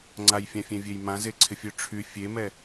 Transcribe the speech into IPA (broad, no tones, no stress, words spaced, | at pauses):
ŋ͡ǀajfʲãfʲɛ̃vʲej mãzeǀʰɪfʲø ʈ͡ʂʰy fʲemɛ